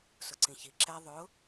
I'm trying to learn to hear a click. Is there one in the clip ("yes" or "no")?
yes